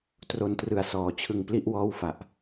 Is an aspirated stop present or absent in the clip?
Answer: present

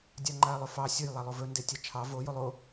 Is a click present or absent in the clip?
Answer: present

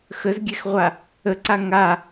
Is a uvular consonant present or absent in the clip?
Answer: present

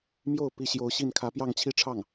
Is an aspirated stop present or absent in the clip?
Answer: present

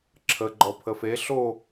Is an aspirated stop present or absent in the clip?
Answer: present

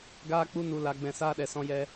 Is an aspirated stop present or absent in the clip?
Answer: absent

